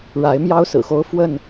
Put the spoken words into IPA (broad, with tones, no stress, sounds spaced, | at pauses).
ɻ a˨˦ ɪ̯ m j ɑ˦ ʊ̯ s ɹ̩˨˩ x o˦ ʊ̯ f w ə˥˨ n